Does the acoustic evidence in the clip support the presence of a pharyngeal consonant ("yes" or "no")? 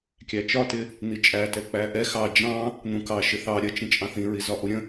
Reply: no